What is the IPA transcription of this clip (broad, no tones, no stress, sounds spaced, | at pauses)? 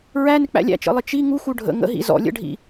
ɹ æ n ɪ k͡p æ̰ lʲ æ̰ t͡ʃ ə̰ lˠ ɪ t͡ʃ i ŋ u x u ɖʱ ə̰ ŋ ə̰ ɦ ḭ z ɔ̰ lʲ ə̰ ɖʱ ḭ